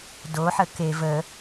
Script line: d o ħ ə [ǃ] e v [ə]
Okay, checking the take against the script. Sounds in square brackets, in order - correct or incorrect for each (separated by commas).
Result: incorrect, correct